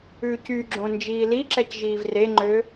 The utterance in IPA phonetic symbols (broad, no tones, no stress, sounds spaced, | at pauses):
ʉː c y ɡ͡ǁ õ n d͡ʒ iː l i ǁ ɛ c ʒ iː v r e ŋ͡ǃ ø